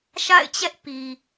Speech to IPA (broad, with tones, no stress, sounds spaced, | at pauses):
ʃ a̰˦˨ ɪ̯ t͡ɕ ɛ˦ ʔ p i˨